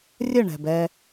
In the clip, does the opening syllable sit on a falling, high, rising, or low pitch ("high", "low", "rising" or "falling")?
falling